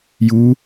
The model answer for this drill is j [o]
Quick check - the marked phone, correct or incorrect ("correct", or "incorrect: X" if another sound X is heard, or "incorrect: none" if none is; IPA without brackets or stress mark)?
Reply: incorrect: u